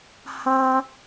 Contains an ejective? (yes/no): no